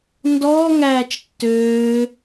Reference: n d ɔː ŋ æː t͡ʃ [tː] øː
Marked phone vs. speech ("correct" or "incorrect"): correct